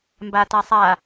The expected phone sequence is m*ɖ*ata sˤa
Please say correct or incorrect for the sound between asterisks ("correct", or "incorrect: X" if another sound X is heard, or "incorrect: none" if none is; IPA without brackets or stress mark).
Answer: incorrect: b